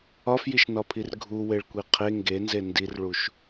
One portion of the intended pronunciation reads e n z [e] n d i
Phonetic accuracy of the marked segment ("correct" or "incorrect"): correct